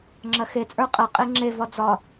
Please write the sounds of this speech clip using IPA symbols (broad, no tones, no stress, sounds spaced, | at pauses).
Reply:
ŋ͡ǁ ɐ x e t͡sʼ ə˞ qʼ ɐ qʼ e ŋ͡ǁ e v ɒ d͡z ɒ